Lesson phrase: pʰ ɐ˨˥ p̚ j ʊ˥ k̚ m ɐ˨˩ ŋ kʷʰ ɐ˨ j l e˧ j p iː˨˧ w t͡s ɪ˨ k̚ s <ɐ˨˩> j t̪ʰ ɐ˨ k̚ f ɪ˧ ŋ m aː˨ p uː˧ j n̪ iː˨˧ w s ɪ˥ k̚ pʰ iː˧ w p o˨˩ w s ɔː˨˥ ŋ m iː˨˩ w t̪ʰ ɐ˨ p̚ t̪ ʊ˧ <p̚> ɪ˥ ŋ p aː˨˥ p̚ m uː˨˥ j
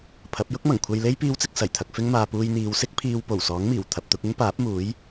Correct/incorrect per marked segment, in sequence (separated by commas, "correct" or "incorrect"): correct, incorrect